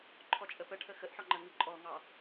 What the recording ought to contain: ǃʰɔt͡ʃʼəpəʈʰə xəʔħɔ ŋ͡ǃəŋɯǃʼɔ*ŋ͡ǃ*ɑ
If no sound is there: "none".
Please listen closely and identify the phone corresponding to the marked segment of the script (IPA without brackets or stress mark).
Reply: ŋ